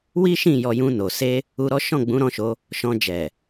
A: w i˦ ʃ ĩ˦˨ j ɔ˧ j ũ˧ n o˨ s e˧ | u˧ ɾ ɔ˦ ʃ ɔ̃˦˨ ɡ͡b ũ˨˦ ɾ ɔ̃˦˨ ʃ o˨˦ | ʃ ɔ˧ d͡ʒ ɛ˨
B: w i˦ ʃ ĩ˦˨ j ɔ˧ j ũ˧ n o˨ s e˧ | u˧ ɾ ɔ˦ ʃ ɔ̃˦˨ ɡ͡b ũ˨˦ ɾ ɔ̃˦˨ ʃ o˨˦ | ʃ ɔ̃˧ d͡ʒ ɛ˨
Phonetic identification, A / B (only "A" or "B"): B